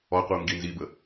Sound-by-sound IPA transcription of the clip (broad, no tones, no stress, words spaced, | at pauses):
ɔqʷɯu̯ ŋɡinzibə